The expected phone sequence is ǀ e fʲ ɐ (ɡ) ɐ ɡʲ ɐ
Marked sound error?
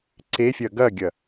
no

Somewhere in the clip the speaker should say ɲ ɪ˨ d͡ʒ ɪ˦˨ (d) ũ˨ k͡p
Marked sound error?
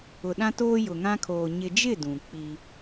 no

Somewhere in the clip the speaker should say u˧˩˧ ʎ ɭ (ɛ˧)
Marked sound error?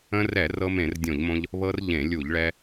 no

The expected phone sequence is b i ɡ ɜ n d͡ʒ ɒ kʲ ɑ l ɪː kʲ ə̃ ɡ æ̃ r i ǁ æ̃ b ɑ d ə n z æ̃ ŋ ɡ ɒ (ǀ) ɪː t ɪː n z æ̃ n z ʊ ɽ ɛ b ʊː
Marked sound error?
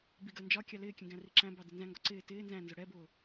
no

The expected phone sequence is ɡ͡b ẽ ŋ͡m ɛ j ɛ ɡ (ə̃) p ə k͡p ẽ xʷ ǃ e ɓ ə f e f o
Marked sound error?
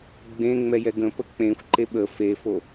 no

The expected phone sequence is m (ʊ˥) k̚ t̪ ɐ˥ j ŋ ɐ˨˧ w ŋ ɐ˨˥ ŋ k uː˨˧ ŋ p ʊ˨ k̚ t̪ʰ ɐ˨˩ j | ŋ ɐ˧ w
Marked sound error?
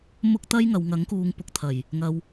no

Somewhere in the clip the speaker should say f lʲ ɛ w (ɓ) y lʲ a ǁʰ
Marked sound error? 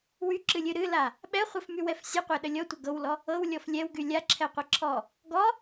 yes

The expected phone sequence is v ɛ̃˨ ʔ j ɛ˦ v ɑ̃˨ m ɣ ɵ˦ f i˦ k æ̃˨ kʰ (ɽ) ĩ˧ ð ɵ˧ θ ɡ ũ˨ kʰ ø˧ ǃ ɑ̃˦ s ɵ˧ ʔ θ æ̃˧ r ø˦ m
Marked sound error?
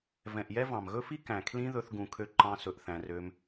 yes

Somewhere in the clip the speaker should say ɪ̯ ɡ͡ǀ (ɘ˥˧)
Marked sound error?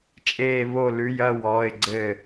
no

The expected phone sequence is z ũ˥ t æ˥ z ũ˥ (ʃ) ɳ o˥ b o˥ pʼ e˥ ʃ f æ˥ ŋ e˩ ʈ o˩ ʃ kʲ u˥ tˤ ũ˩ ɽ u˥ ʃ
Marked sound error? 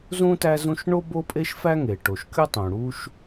no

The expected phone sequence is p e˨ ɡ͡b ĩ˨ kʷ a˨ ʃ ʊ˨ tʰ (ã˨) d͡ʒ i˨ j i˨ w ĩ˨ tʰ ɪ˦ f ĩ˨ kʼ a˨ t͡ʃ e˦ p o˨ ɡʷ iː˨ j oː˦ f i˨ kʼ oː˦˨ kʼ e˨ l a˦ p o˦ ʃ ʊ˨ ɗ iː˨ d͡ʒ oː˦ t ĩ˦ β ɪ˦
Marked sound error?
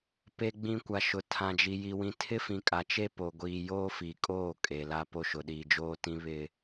no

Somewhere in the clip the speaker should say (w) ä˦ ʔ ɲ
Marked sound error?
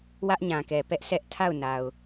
no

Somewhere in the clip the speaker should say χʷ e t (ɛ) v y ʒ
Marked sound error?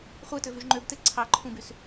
yes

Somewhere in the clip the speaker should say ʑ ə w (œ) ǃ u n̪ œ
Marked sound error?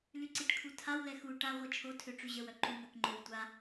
no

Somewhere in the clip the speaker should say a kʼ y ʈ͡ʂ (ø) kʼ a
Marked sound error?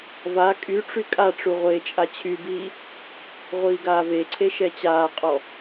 yes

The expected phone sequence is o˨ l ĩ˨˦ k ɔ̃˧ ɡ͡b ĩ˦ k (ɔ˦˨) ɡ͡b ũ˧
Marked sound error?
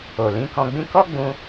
yes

